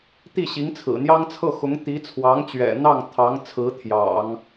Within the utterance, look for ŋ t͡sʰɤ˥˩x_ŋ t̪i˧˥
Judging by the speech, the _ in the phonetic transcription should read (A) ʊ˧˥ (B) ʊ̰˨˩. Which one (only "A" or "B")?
A